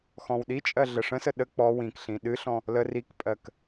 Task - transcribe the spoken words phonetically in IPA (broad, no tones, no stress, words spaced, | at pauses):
xɔ̃wɗit͡ʃʼɜ ɮəʂə̃sə ɗə k͡pɔ wĩkɬĩ ɗɨɬɔ̃ | lə rikpʼɜk